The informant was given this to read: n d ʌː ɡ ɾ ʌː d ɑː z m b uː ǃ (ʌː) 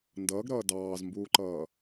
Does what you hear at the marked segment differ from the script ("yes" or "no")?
no